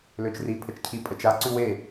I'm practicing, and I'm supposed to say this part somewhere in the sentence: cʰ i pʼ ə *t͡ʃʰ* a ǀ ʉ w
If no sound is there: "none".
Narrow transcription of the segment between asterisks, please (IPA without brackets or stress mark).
t͡ʃ